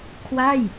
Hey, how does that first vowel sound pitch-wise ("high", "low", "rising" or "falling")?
falling